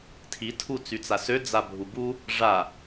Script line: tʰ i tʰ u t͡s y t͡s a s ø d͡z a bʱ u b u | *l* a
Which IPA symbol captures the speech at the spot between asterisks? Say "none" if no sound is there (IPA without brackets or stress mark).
ʐ